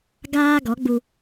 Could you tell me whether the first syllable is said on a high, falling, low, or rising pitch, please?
high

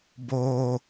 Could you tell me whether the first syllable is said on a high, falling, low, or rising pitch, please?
low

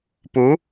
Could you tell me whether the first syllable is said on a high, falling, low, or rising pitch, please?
rising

